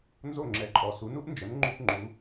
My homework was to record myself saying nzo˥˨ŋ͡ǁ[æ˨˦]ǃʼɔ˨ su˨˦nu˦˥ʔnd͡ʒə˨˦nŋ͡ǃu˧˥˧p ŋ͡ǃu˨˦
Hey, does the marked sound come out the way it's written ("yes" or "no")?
no